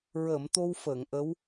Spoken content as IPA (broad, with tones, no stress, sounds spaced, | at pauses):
ɹ əː˨˩˨ m t̪ o˧ w f əː˨˩˨ ŋ ʔ ə˧˥ w